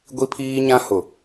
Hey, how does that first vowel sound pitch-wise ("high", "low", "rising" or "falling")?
high